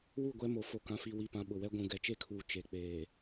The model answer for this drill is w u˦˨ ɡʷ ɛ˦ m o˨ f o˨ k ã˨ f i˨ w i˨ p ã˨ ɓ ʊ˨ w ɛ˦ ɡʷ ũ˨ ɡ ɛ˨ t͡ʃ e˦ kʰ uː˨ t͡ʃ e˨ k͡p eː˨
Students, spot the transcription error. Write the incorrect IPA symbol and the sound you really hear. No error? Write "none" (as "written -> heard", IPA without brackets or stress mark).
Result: none